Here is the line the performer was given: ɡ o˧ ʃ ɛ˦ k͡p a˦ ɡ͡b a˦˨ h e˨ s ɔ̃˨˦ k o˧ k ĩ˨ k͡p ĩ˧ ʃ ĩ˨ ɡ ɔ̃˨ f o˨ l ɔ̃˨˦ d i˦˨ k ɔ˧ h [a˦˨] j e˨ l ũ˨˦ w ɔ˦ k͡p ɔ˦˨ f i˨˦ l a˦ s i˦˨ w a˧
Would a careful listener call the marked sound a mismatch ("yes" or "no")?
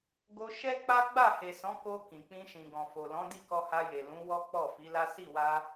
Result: yes